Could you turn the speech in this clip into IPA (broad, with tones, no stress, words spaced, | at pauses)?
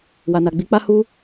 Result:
wa˨na˨ɡ͡bi˨˦k͡pa˦ hu˦